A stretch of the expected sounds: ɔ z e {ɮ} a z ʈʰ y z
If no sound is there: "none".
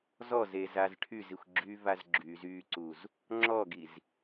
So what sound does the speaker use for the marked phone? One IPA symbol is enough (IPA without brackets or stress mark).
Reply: z